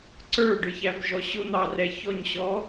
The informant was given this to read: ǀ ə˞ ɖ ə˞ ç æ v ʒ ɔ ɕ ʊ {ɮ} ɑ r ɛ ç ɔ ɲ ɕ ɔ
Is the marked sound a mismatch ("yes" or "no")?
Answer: yes